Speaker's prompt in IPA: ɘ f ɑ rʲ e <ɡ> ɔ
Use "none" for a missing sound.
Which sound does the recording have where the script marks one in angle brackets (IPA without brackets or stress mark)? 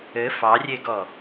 ɡ